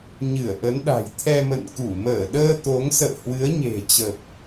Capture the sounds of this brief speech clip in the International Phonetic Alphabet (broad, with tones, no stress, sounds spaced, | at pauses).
ɲ ɨ˧˩ ə̯ ʔ ə˨˦ n ɗ a̤˨˩ j t̪ʰ ɛ˧ m ə̰˧˨ n k u˧˩ m əː˧˩ ɗ əː˧ t̪ o˨˦ ŋ s ə̰ː˧˨ h w ɨ˨˦ ə̯ ɲ e̤˨˩ t͡ɕ ə˨˩ p̚